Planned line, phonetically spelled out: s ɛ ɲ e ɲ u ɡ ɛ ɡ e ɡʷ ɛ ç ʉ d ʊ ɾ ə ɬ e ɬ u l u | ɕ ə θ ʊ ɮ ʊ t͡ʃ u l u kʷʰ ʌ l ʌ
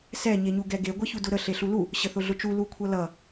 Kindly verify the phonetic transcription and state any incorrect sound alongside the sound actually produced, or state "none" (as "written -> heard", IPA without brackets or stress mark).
ʉ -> u